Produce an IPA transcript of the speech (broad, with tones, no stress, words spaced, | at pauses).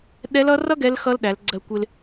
ɗɛ˧˥lʌ˧˥rʌ˥ ɡɛ˧˥lxʌ˧˥lɗæ˩˧l ɡ͡ǀɜ˧kʷɪ˧l